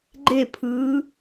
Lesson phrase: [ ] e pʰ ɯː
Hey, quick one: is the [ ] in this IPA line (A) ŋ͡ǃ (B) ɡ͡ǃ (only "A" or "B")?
B